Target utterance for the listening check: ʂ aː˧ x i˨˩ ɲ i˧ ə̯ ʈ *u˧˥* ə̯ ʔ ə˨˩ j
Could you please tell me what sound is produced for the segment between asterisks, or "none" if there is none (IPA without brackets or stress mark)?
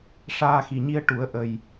u˨˩˦